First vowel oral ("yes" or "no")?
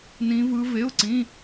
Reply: no